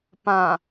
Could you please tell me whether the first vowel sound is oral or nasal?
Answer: nasal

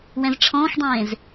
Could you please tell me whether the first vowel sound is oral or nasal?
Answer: nasal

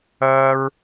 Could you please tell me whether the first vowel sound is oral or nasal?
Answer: oral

